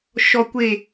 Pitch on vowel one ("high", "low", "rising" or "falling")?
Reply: low